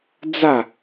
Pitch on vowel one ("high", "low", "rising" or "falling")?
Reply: falling